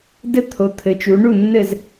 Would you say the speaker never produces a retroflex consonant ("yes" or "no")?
no